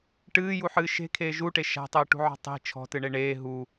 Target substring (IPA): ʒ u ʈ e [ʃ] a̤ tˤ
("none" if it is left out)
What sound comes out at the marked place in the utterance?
ʃ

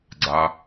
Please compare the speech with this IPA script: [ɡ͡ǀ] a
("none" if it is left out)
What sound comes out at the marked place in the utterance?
ɡ͡ǀ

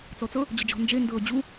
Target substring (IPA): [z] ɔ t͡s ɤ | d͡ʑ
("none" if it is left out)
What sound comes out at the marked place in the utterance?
t͡s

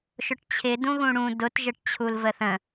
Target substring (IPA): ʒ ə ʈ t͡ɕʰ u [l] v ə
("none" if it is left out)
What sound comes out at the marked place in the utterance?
l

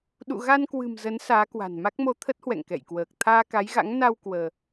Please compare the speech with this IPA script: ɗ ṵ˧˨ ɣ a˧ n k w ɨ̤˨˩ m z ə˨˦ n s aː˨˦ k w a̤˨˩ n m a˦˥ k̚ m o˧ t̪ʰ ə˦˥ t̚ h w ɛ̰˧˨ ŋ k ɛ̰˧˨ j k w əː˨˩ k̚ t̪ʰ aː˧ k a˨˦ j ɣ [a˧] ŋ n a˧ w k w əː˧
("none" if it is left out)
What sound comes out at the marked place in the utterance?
a̰˧˥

